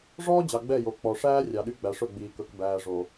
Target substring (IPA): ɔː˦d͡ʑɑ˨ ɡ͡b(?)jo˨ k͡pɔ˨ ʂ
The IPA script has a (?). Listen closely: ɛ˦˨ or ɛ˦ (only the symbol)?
ɛ˦˨